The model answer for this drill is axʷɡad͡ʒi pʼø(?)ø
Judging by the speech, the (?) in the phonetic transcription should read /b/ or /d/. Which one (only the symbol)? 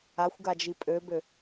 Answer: b